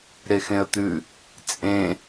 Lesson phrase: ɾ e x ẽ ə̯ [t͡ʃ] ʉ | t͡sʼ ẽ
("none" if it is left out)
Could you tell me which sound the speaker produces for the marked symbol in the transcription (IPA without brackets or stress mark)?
t̪